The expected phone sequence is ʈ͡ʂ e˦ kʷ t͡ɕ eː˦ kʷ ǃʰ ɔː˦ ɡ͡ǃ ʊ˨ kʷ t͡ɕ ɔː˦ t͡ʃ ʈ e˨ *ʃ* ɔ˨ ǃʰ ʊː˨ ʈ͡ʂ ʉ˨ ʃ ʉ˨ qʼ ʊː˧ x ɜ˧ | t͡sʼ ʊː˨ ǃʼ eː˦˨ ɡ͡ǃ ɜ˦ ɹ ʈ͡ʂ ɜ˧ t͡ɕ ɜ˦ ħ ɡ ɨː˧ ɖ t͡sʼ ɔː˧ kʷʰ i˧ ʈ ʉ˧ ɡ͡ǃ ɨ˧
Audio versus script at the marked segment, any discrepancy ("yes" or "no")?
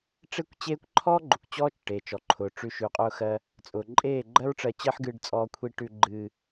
yes